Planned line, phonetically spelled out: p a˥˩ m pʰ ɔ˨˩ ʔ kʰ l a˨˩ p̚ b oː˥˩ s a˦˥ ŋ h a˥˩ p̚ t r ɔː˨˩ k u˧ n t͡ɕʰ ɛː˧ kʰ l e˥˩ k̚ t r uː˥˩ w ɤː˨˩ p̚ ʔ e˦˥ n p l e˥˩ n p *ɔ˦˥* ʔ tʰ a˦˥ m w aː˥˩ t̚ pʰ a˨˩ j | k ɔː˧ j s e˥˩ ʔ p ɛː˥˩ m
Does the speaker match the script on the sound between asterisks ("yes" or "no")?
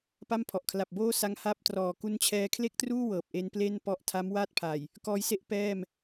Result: yes